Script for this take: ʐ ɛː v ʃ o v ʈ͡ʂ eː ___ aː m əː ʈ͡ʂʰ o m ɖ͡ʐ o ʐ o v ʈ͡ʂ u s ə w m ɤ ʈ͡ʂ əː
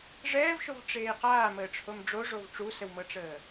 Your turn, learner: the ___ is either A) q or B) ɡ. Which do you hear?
A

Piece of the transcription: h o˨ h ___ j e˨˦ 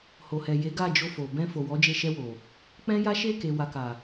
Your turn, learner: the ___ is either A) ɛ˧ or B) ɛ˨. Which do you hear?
B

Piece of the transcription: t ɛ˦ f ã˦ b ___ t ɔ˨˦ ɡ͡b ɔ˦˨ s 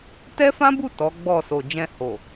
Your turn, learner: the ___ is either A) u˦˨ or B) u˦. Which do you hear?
A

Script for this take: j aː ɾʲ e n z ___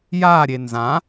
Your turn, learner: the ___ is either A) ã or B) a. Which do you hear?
A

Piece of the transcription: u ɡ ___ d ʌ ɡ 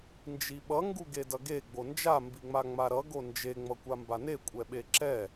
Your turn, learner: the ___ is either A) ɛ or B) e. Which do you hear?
B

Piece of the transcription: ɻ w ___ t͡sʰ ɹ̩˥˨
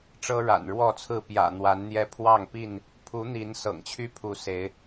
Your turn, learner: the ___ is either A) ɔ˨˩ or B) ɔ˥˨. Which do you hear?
B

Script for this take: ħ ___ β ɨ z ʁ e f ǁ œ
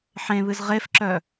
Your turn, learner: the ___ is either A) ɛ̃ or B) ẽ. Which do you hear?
B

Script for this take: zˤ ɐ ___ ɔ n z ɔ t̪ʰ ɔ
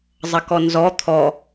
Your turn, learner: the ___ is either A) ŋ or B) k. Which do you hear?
B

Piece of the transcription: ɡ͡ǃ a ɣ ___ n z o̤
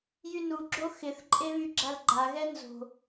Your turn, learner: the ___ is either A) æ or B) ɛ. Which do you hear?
B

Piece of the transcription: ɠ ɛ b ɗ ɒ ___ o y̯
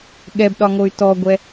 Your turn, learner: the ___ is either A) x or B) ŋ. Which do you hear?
B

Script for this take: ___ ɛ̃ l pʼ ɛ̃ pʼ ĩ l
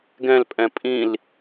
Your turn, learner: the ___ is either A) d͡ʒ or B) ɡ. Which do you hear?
B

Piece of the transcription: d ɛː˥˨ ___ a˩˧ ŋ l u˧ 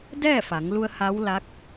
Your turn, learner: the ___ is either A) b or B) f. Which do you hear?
B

